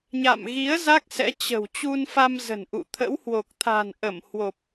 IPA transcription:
ɲ a̰˧˨ m ɣ i˨˦ ə̯ z a˦˥ k̚ s ɛ̰˧˥ t͡ɕ ə̤˨˩ w t͡ɕ u˧ n f a˧ m z ə̤˨˩ n ʔ ṵ˧˨ t̪ʰ ə̰˧˥ w h w o˨˩ k̚ t̪ʰ a̤˨˩ n ʔ ə˧˩ m h w o˨˩ p̚

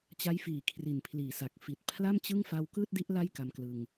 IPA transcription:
t͡ɕ a˦˥ j f iː˨˩ kʰ r i˨˩ n pʰ l iː˨˩ s a˨˩ k̚ f i˨˩ t̚ pʰ l a˥˩ m t͡ɕ ɯ˥˩ ŋ f aː˧ w k ɯː˥˩ t̚ d i˦˥ ʔ l a˥˩ j k a˧ m k l ɯ˧ ŋ

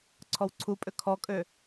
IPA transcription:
ǀʰ ɔ w ǀʰ u pʼ ø kʰ ɔ kʼ ø

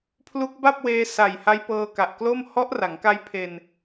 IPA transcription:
pʰ l u˦˥ k̚ b a˥˩ p̚ w eː˧ s a˨˩ j h a˦˥ j p ɤː˧ k a˨˩ ʔ k l o˥˩ m h ɔ˦˥ ʔ r a˩˦ ŋ k a˦˥ j pʰ e˧ n

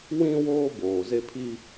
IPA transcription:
w ĩ˦ w oː˦ b oː˨ z e˦ pʰ i˦

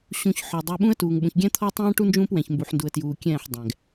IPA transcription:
ɕ ũ˨ ç ħ ɔ˨ dˤ uː˨ ɓ ũ˦ ə̯ t uː˨ ŋ ɓ ũ˨ ç ɡʲ ɛ̃˦ t̪ʰ ɔ˦ tˤ ɛ̃ː˦ ʈ u˦ n d͡ʒ ũː˦ p w ɛ̃˨ ç m b u˨ ħ n d u˨ ə̯ t j uː˨ kʲ ɛ̃ː˦˨ ħ dˤ ɛ̃ː˨ ɡ

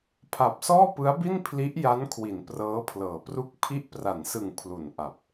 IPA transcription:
pʰ a˨˩ p̚ s ɔː˥˩ p ɯ˦˥ a̯ b i˥˩ n pʰ l i˦˥ ʔ j a˦˥ n kʰ w i˩˦ n p r ɤː˦˥ pʰ l ɤː˩˦ p r u˥˩ k̚ pʰ i˦˥ ʔ p r a˩˦ n s ɯ˨˩ ŋ pʰ l u˨˩ n ʔ a˨˩ p̚

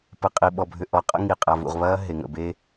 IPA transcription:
p ə˨ qʼ i˨ ɓ ɔ˨ bʱ ʏ˨ ʔ ɔ˨˦ qʼ ə̰˦ ŋ i˨ qʼ a˨ v ṵ˨ ʁ β ɐː˦ ɦ e˨ ŋ ə̰˨ b e˦

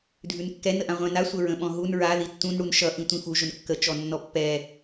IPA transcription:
dʱ ʉ n kː ɛ n ə ʔ ã ʁʷ ɛ̃ n a sʷ ə ɹ ə̃ ɓ ɔ̃ ɦ u n ɹ a ð i tː ũ n ɽ u n ʃ ʌ ʔ ĩ tʷ ĩ f u ʒ ʊ n kː ə t͡ʃ ɔ nː ɔ pː ɛ

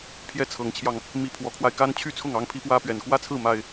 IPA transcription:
pʰ j ɛ˥˨ t͡sʰ ɤ˨˦ ŋ t͡ɕʰ j ɑ˧ ŋ | m i˦ pʰ w ɔ˨˦ kʰ w a˧ ɪ̯ k a˦ n t͡ɕʰ y˥˨ t͡sʰ ʊ˥˨ ŋ ɑ˦ ŋ pʰ i˦ p w ä˦ p ɥ ɛ˨˩ n k w ä˥˨ t͡sʰ ɹ̩˥˨ m a˨˩ ɪ̯

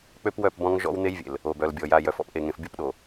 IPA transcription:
k͡p ø˦ p w œ˦˨ p b ɔ̃˦ ŋ ʒ ɔ̰˦ w n̪ e˦ j vʲ ḛ˨ l | o˨ b œ˨ l bʲ ɔ˨ j a˨ j œ˨ f ɔ̰˦ p ʔ e˨ ŋ ẽ˨ f bʲ o˦ p ɗ o˨

